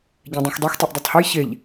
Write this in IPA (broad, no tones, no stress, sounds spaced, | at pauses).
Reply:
ɟ ɛ̃ dˤ ũ x dˤ ɛ x tˤ e ʔ dˤ ʉ tˤ h ɛ j ç e ʎ